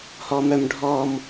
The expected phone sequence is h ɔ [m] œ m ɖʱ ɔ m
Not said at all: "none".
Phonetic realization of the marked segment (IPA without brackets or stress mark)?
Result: m